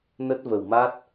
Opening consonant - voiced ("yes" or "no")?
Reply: yes